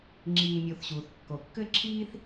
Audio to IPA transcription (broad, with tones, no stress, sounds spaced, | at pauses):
ŋ͡ǁ iː˨ mʲ o˨ θ ɕ uː˩ θ kː o˩ kː ɘ˥ ǁʰ iː˥ θ